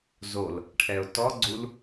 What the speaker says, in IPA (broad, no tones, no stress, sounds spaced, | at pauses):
z o l | ʈʰ ɛ ʊ̯ t ɔ ɡ͡ǀ u l